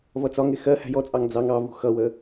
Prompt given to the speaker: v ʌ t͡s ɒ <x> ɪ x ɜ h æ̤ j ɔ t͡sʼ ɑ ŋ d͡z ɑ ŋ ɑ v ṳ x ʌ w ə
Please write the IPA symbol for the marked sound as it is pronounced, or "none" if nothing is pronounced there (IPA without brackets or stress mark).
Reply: ŋ